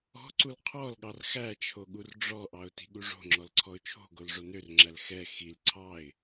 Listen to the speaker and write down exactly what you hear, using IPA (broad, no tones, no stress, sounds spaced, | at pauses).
ɔ̤ ǀ u l qʰ ɔ l ɠ ɑ r x æ t͡ʃʰ o ɠ u r ɖ͡ʐ ɔ ʔ ɑ ʊ̯ t i̤ ɠ u ʐ o̤ ŋ͡ǁ ɔ l ǀʰ ɔ ʊ̯ t͡ʃʰ o̤ ɡ o l ʐ o n ø r ŋ͡ǁ æ l x ɛ x i l ǀʰ ɑ ɪ̯